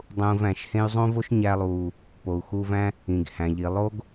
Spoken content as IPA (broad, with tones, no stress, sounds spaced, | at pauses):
dˤ ũː˧ v æ̃˩ ʃ h ẽ˥ y̯ zˤ õ˥ v o˥ ʃ ɲ æ˧ lˠ uː˩ | p o˩ u̯ x uː˧ v æ̃˥ | ĩ˩ ɡ h æ̃˩ ʎ i˩ lˠ o˥ ɡ